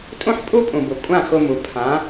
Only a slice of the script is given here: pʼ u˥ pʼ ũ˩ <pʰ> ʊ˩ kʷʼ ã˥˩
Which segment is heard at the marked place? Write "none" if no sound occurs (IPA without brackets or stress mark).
b